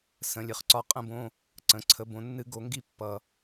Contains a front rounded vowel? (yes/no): no